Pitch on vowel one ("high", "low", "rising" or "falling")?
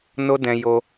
high